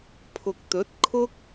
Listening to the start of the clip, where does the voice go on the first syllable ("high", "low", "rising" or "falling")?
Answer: low